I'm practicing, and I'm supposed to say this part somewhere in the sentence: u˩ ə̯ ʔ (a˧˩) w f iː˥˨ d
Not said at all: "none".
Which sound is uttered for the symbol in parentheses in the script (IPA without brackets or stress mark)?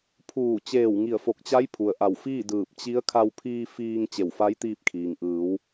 a˧˩